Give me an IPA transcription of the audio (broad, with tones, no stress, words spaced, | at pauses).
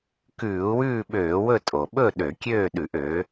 kʉː˧˩˧u̯wʉː˥˨ɓøː˧˩˧wɵ˥˨ tʼo˩ɓɵ˥˨ ɗø˧˩˧kʲøː˥˨ɗʉ˧˩˧ʔ ø˩˥